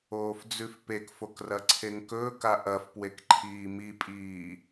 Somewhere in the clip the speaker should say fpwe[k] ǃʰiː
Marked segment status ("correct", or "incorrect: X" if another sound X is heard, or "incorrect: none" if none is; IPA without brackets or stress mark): correct